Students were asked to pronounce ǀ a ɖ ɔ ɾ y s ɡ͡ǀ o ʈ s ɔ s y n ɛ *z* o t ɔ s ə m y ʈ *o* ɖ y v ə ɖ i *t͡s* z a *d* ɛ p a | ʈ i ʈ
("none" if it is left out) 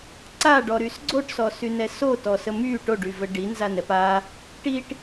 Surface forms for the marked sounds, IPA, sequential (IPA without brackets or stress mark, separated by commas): s, o, n, n